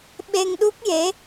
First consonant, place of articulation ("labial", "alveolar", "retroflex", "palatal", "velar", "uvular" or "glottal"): labial